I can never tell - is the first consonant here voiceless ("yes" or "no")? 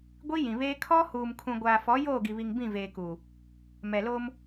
no